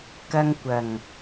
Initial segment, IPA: k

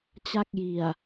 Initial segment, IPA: t͡ɕ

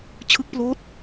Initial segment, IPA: t͡ɕʰ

